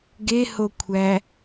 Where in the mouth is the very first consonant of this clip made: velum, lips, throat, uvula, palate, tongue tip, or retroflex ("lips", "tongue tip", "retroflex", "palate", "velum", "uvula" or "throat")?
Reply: velum